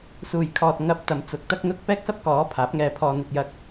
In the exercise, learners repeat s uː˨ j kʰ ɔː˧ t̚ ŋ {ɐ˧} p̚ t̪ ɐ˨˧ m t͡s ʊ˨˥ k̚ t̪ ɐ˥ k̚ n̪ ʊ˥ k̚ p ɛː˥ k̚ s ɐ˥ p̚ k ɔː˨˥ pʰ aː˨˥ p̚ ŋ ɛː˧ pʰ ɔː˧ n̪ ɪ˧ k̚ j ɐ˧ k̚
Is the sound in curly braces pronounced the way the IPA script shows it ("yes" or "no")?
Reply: yes